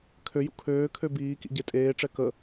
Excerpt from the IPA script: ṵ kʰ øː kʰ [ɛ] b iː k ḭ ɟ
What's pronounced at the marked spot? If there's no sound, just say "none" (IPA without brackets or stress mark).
ø